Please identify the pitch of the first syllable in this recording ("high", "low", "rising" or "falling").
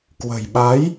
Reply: low